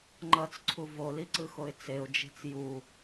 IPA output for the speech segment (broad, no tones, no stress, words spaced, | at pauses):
ŋ͡ǃʌt͡sǀʰu voliǀɯxoɪ̯ t͡seʊ̯d͡ʒe̤t͡s ju